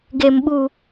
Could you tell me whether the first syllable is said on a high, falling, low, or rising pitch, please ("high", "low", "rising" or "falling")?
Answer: high